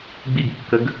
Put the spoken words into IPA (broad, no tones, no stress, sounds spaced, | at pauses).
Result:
ɡ͡b i ɡ kː ə ɡ